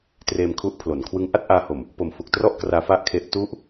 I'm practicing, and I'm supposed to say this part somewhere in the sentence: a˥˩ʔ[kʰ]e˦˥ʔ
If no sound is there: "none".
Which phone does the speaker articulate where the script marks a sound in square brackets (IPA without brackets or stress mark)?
kʰ